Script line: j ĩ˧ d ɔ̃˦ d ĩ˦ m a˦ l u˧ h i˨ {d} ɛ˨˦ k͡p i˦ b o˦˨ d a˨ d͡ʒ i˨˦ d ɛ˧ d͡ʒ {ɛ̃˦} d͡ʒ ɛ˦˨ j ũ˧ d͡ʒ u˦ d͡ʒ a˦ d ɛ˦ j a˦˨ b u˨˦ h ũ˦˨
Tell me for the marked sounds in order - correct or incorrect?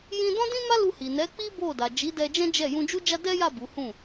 incorrect: n, correct

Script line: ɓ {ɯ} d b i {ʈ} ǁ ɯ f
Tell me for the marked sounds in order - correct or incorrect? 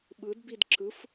correct, incorrect: d

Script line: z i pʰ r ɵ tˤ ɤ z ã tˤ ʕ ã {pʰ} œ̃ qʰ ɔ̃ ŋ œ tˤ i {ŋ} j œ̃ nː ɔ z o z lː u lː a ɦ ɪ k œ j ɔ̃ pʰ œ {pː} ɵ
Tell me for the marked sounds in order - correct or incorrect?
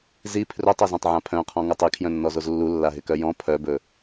correct, incorrect: kʰ, incorrect: b

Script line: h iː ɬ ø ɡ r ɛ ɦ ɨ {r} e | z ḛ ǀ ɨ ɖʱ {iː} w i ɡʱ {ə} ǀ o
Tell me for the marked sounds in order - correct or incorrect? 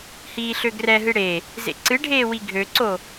incorrect: ɽ, incorrect: eː, incorrect: ø

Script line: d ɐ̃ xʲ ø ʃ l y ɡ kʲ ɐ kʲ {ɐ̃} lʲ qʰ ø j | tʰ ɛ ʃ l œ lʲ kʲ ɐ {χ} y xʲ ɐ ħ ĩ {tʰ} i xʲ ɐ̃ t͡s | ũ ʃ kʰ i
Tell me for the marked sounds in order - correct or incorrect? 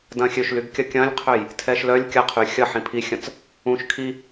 correct, incorrect: qʰ, incorrect: pʰ

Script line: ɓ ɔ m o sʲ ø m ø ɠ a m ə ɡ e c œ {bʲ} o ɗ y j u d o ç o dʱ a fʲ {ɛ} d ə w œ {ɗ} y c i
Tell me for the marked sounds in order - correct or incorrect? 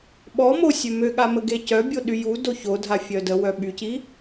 correct, incorrect: œ, incorrect: ɓ

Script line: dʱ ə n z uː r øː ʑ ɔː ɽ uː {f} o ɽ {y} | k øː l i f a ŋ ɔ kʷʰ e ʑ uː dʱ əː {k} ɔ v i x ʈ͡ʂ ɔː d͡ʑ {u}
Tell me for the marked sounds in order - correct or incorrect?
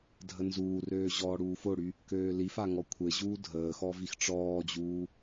correct, correct, incorrect: x, incorrect: uː

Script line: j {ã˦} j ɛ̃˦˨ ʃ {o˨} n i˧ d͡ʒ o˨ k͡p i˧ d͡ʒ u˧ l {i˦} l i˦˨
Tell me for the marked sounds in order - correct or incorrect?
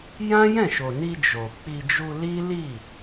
correct, correct, correct

